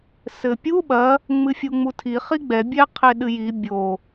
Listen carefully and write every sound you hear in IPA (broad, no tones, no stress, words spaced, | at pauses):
sɘpʲu ɓɐ | ŋ͡mɨfʲuŋ͡mutʰi χiɡ͡bɛ bʲɛ qʰeɗɨji bʲo